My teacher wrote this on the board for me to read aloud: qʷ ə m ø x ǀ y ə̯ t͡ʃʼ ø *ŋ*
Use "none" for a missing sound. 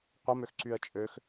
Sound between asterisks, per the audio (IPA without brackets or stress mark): x